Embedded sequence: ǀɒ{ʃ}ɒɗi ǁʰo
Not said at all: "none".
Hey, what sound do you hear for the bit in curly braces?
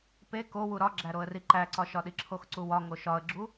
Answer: ʃ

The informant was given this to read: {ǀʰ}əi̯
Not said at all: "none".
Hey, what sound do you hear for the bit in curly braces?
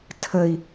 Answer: tʰ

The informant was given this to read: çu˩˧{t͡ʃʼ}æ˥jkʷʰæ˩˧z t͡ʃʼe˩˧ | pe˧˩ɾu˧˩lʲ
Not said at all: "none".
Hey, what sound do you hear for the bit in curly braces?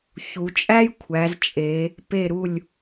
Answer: t͡ʃʼ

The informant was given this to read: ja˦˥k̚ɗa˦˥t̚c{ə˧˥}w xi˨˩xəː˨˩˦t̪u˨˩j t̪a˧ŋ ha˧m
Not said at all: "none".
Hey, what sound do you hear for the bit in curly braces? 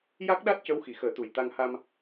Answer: ə˧˥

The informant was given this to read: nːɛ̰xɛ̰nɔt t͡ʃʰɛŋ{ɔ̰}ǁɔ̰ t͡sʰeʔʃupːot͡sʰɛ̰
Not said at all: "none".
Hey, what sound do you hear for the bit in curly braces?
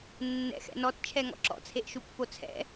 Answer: ɔ̰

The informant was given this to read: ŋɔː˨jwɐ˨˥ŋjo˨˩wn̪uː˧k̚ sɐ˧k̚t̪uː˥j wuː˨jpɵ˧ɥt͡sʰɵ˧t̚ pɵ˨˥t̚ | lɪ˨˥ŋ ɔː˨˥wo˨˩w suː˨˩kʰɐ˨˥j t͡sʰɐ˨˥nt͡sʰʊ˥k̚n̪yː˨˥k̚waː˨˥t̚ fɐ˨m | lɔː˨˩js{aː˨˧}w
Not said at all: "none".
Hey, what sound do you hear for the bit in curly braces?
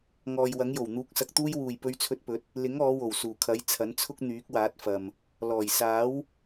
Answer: aː˨˥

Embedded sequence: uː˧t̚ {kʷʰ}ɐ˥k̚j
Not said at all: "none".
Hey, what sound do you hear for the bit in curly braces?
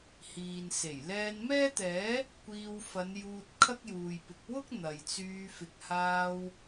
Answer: kʰ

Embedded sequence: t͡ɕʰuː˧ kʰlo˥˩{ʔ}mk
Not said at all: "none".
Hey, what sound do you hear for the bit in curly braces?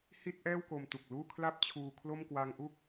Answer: none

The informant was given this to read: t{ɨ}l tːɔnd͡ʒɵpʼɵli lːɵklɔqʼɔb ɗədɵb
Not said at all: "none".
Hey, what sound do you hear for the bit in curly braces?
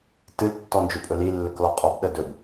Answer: ɨ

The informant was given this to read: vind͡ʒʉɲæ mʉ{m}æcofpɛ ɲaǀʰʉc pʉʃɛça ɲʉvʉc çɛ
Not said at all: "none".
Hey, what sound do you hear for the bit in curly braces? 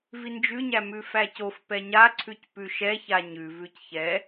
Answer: f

